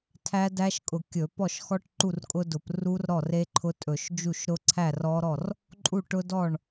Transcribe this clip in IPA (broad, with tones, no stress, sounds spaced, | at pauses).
tʰ æ˦˥ d æ˦˥ ʃ kʼ ʊ˧˩˧ kʲ ɵ˧˩˧ p ɔ˥˩ ʃ x ɔ˦˥ ʈ ǃ u˥˩ r kʼ ʊ˦˥ d ʊ˧˩˧ p r u˦˥ r ɾ ɔ˥˩ r e˦˥ ǃʰ ʊ˦˥ tʼ ɵ˧˩˧ ʃ d͡ʒ u˥˩ ʃ ɾ ʊ˦˥ ǀʰ æ˥˩ r ɔ˦˥ ɾ ɔ˥˩ r | ǃʼ u˥˩ ʈ ʊ˦˥ d ɔ˥˩ ɳ